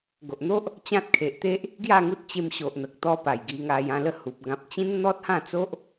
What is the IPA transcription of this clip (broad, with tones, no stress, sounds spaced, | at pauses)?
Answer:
ɡ o˨ ʔ n̪ o˦ ʔ | t͡ɕ ã˦ t̚ kʰ e˨ ʔ t̪ e˦ ʔ | ɡ j a˥˧ ŋ u˦ t̚ t͡ɕ e˧ m ɕ o˨ ʔ n̪ ə˨ k̚ t̪ ɔ˧ p a˨˩ j ɡ i˧ ŋ a˧ j ã˥˧ l ə˥˧ h u˨ p̚ ɡ ã˨ p̚ t͡ɕ ĩ˦ n n̪ ɔ˦ t̚ h ã˥˧ t͡s o˦ ʔ